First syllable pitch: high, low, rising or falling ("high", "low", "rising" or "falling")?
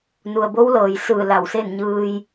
low